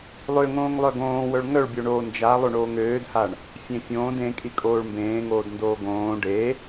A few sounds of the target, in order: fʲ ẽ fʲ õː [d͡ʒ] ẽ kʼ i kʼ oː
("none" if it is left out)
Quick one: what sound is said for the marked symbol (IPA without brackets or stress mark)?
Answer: d